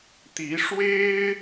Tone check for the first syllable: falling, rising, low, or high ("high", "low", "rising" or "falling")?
rising